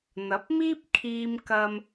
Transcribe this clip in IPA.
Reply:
n̪ɐ˨˥p̚miː˥p̚kʰiː˧m kɐ˧m

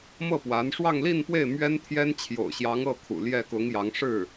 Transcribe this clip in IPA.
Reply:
mɤ˥˩ pwa˧˥n ʂwɑ˥˧ŋli˥˧npwe˥˩ɪ̯ mɥɛ˥nt̪ʰjɛ˥n t͡ɕʰjo̰˨˩ʊ̯ɕjɑ˧˥ŋ ɤ˥˩kʰṵ˨˩ ljɛ˥˩kʊ˧˥ŋjɑ˧˥ŋ ʂɻ̩˥˩

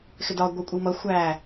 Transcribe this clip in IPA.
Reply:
xɪdɒ ɡʷɛkʷʼimʌ xʷæ

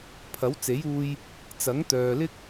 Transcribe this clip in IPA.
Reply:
pʰɐ˨˥wt͡se˨˥juː˧j | t͡sɐ˨˥ŋt̪œː˨lɪ˥k̚

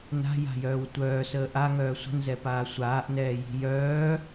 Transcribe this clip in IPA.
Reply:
na̤ja̤jœːw tʷœːsəː ʔaŋœː sʷə̤nzɛpaː sʷaːʔnɛːji̤ jœː

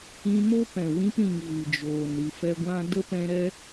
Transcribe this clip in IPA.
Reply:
ĩ˧mo˦ pɛ̃˨wĩ˧pɾĩ˨ŋ vɨ˨d͡ʒoː˨n ɾɨ˨fɛ˧ɡʷã˦ də˦pɛ̃˧ɾɛ˦

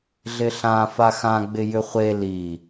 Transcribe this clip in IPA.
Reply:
ɮɪɬã faxãɡ͡bɪ jʏχʷe li

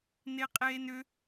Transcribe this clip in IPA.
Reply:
neqʼeːnʏ

